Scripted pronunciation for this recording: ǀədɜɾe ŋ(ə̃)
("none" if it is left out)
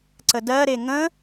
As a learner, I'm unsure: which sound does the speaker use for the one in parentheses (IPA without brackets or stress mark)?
ə̃